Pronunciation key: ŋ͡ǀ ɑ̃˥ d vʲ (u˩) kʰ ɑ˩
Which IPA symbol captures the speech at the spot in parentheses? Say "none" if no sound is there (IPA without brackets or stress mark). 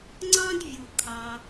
u˩